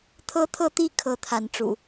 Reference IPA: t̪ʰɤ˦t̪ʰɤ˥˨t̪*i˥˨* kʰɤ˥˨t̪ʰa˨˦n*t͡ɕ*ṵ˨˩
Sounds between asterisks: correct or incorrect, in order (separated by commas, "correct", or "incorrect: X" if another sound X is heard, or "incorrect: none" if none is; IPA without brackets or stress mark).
correct, incorrect: ʈ͡ʂ